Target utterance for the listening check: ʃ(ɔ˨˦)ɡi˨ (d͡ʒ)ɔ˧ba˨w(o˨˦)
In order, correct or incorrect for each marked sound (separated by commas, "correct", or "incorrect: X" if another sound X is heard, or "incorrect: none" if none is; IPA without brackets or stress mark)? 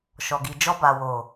incorrect: ɔ˨, correct, incorrect: o˨